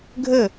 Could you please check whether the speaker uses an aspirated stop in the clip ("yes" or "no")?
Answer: no